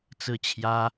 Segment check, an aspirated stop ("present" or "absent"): present